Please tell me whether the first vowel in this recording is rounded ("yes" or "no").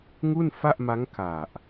yes